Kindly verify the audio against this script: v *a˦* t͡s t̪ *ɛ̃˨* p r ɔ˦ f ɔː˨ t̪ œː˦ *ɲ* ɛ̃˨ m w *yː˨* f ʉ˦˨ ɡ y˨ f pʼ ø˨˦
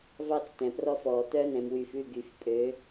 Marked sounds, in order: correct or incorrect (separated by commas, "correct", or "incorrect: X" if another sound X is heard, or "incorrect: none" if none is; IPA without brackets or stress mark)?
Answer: incorrect: ɑ˦, correct, incorrect: n, correct